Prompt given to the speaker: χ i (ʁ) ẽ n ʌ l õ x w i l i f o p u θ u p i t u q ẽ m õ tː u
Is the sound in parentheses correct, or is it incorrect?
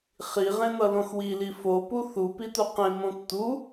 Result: correct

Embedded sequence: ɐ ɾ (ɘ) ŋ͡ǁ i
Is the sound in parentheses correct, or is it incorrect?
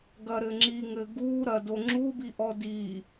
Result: correct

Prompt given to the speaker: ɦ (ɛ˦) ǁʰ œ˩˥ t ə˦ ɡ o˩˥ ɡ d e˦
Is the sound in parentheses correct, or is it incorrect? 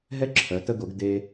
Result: correct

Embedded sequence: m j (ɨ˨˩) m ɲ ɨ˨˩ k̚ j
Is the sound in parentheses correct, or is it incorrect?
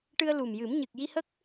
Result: incorrect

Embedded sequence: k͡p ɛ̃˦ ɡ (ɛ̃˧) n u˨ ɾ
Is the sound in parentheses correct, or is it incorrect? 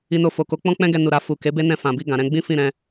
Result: incorrect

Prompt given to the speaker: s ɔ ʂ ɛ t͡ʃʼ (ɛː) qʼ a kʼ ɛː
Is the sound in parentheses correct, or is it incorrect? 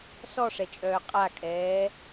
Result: incorrect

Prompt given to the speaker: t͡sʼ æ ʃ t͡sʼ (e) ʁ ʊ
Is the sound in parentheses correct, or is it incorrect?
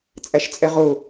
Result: incorrect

